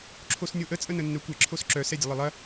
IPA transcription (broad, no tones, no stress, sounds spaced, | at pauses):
ǁʰ o s nʲ o ʔ ə t͡sʼ ə n ə nː œ kʷ ɛ ǁʰ o s ǁ œ s ɛ dʲ ə lˠ ə lˠ ɐ